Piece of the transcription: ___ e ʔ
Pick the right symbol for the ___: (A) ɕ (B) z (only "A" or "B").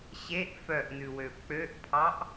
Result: A